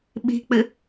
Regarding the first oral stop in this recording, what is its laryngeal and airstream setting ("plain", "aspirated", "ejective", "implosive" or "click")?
implosive